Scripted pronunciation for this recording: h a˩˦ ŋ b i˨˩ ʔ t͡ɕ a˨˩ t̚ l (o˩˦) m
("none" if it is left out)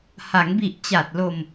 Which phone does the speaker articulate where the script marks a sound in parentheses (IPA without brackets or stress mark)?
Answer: o˧